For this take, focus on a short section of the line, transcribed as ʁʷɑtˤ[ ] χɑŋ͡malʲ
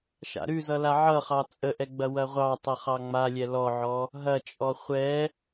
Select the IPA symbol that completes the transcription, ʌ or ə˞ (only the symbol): ʌ